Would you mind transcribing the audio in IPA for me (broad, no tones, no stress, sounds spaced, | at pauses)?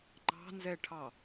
ŋ͡ǃ ɑ̤ n z ɛ ʈʰ ɑ